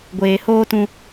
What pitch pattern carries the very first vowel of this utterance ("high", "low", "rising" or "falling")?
low